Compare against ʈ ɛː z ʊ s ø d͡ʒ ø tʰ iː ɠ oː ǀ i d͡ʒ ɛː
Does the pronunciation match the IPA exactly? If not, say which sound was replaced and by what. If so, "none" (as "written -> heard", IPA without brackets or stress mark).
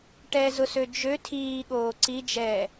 none